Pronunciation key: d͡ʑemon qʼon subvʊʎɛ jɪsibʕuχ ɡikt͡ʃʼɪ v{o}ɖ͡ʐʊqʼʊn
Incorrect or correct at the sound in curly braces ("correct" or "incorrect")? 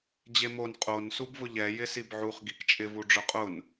incorrect